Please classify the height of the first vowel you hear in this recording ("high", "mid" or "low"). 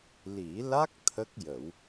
high